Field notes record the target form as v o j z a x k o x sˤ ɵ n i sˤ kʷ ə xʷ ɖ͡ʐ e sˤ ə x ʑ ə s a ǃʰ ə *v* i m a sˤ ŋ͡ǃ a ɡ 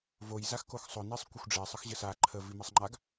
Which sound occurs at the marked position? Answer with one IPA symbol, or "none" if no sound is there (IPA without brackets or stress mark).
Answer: v